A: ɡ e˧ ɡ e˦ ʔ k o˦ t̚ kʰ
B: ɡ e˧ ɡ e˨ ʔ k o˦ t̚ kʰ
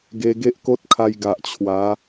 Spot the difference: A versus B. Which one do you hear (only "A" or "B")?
A